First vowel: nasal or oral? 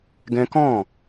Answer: nasal